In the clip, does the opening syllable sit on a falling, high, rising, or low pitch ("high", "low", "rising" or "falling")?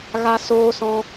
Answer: high